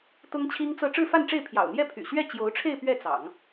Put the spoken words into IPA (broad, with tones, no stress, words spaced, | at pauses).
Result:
t̪ʊ˥ŋt͡ɕʰi˥ŋt͡sɤ˥˧ ʈ͡ʂɻ̩˥˧fa˥˧nʈ͡ʂe˥˩ɪ̯pʰjɑ̰˨˩ʊ̯ n̪jɛ˥˩pʰy̰˨˩ɕɥɛ˥˩ t͡ɕjo˧˥ʊ̯ʈ͡ʂʰe˥˧ɪ̯ pɥɛ˥˩t͡sɑ̰˨˩˦ŋ